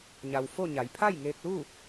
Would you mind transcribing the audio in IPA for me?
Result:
ɲ a˩ w f o˥˨ ɲ a˩˧ j pʰ a˥˨ j ŋ eː˧ k̚ l u˥˨

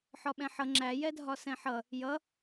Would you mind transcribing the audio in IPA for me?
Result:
ħ ɒ ɓ ɛ̃ ħ ʌ ŋ͡ǁ æ j ɛ dʱ ɒ s ɛ̃ ħ ʌ | j ʌ

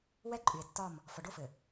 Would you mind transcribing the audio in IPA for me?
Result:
w ɛ˦ ǃʼ y˨ e̯ tː ɒ˦˨ m | f ɔ˨ ɖ o˦˨ f ɘ˨

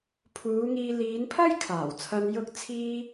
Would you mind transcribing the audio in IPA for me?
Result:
pʰ uː˨˧ ŋ iː˧ l iː˨˧ n pʰ ɐ˥ j kʰ aː˨˩ w t͡sʰ ɐ˧ n j ʊ˧ k̚ t͡sʰ iː˧

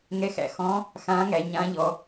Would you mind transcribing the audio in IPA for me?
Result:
ŋ ɛ˧˥ x æ̰˩ x ɔ̃˧˥ | x ãː˧˥ ŋ æ˩˧ ɲ ã˧˥ ʎ ɔ˩˧

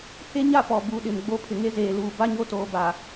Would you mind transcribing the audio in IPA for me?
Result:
h e˦ ɲ a˦ p ɔ˨ b u˨˦ ɗ ɪ˨ m ɡ͡b o˦ pʰ ɪ˨ ŋ e˦ z eː˨ l uː˨ b a˦ ɲ o˦ t oː˨ b a˨

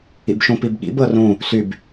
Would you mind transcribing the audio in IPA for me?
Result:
ḭ b ʃ ũ p i b ɠ ḭ b ɤ r ũ | s y b

